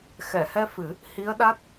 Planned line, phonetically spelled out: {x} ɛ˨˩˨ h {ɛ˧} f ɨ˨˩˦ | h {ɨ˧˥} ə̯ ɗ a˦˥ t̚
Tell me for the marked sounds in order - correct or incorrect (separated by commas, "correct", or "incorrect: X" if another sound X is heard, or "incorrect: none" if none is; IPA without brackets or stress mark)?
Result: correct, correct, incorrect: i˧˥